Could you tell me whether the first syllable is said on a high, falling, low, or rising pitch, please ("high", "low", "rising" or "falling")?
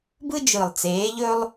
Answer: high